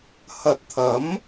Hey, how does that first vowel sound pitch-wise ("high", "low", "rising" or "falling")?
low